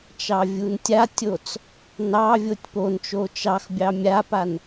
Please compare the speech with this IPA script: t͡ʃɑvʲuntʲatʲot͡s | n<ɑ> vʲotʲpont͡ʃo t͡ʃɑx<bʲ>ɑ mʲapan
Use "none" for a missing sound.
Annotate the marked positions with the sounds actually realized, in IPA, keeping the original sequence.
ɑ, bʲ

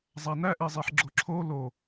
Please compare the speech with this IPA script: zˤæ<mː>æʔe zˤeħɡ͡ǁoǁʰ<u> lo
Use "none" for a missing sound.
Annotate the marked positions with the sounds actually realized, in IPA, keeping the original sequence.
n, o

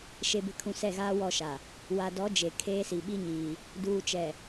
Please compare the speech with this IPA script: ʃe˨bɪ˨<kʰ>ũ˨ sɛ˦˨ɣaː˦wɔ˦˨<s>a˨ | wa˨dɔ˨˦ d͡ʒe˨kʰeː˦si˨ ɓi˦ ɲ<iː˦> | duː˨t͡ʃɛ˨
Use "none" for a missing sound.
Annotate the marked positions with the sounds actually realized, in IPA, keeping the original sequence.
kʰ, ʃ, iː˨

